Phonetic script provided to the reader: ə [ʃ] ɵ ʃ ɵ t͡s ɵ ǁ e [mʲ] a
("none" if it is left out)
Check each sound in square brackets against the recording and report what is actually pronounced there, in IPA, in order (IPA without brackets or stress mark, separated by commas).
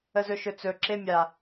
z, mʲ